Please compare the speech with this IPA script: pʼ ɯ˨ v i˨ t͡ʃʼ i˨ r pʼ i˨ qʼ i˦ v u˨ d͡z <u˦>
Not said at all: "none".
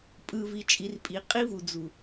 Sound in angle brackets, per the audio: u˨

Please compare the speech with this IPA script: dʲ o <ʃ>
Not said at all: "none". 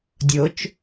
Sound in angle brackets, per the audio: t͡ʃ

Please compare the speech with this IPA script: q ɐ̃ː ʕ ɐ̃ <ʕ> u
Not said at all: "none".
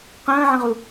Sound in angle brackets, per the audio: ʁ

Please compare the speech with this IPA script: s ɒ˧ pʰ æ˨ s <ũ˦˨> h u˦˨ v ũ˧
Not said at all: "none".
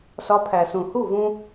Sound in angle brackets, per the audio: ũ˨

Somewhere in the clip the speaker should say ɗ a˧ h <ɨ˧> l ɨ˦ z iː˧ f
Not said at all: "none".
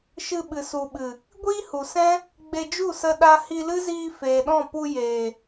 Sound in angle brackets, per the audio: i˧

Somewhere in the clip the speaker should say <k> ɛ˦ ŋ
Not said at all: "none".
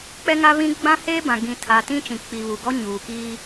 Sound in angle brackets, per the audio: k͡p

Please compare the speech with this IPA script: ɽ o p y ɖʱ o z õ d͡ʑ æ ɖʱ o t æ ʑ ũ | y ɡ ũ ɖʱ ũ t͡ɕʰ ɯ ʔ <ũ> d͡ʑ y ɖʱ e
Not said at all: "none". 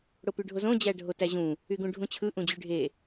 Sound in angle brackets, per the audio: ũ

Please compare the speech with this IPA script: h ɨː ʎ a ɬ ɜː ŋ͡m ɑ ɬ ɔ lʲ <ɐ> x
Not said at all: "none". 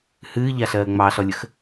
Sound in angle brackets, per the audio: ə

